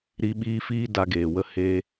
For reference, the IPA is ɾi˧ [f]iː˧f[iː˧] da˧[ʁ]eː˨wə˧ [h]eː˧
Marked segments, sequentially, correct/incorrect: incorrect, correct, incorrect, correct

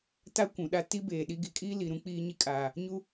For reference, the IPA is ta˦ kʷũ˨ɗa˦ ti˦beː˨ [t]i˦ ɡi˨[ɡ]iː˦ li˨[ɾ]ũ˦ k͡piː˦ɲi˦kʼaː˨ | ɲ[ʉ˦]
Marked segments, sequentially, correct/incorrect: incorrect, incorrect, correct, incorrect

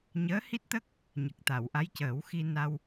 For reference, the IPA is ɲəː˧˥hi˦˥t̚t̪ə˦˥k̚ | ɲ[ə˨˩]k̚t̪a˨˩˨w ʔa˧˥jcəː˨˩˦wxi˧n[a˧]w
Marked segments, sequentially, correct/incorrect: correct, correct

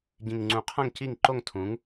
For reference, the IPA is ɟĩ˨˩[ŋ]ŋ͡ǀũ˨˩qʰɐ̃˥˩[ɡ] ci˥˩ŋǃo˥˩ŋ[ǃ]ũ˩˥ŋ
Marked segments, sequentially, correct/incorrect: correct, incorrect, incorrect

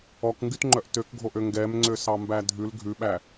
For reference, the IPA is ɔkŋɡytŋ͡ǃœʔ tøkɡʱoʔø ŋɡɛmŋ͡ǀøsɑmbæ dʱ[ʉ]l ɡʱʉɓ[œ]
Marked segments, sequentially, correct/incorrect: correct, incorrect

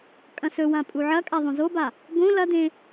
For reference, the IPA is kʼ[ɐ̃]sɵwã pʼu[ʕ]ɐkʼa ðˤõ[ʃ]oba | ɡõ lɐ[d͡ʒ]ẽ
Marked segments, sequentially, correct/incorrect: correct, correct, incorrect, incorrect

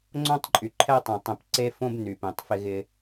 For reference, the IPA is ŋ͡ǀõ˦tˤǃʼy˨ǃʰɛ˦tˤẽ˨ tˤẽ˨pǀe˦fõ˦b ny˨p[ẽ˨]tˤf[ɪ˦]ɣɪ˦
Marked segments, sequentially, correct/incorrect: correct, correct

